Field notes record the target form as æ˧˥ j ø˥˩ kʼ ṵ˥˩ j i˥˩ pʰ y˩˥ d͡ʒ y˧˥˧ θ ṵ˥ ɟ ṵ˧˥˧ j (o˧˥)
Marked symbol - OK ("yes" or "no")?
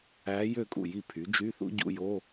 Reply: no